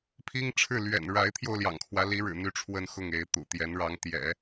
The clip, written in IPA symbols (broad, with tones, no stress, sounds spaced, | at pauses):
pʰ i˥ ŋ ʈ͡ʂʰ ɻ̩˥˩ l ɥ ɛ̰˨˩ n ɻ a˧˥ ɪ̯ t̪ʰ j o˧ ʊ̯ l j ɑ̰˨˩ ŋ kʰ w ä˦ l i˧˥ ɻ ɻ̩˨˩ n̪ y˧˥ ʈ͡ʂʰ w ə˥˧ n x ʊ˥˩ ŋ e˧˥ ɪ̯ t̪ ṵ˨˩ t̪ j ɛ˧˥ n ɻ ɑ˧˥ ŋ t̪ j ɛ̰˨˩˦